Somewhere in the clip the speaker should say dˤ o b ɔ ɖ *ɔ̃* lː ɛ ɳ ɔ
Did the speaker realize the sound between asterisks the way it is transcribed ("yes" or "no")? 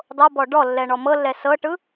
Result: no